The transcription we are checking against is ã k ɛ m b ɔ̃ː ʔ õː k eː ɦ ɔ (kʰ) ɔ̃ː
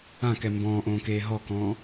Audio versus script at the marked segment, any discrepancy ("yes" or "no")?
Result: yes